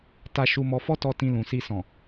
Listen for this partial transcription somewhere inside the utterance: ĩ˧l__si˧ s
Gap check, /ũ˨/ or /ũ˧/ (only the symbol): ũ˨